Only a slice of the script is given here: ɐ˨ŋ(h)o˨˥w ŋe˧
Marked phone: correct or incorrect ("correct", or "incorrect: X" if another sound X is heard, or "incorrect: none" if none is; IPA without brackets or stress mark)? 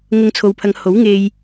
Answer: correct